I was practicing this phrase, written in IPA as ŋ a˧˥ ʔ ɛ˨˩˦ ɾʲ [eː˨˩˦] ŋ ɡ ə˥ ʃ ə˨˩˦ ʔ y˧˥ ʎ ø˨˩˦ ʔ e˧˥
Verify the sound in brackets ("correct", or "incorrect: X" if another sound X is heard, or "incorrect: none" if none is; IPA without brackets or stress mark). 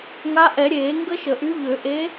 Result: correct